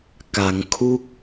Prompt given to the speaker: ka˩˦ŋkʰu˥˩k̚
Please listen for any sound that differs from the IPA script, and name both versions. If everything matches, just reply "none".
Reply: none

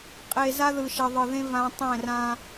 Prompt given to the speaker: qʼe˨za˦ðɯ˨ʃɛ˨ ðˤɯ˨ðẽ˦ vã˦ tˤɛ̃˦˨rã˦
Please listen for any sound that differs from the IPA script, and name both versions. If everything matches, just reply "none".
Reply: none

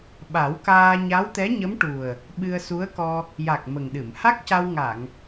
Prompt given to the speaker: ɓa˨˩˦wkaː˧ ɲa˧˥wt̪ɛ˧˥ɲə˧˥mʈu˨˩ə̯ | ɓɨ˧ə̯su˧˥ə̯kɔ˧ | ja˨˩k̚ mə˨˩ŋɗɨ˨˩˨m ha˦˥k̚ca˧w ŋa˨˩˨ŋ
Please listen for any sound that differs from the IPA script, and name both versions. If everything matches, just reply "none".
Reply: none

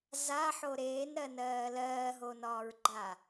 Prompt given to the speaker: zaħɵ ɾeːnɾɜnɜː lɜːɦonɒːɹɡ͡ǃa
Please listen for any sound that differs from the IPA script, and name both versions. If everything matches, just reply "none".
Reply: ɵ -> o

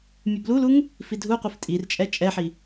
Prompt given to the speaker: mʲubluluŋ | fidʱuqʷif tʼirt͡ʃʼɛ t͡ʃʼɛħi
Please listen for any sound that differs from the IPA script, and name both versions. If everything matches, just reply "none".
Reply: none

